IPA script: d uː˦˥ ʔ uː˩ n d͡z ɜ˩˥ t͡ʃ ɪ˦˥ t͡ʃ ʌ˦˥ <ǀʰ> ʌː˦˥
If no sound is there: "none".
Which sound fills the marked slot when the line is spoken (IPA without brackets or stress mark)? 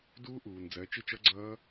ɡ͡ǀ